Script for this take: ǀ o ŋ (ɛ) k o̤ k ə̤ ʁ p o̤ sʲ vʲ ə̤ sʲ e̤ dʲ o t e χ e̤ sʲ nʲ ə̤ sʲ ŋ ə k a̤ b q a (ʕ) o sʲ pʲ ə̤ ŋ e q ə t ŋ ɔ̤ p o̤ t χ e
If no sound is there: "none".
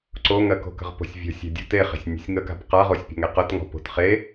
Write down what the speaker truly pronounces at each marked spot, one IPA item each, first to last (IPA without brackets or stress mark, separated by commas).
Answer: ɜ, ʁ